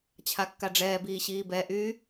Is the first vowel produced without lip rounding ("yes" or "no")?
yes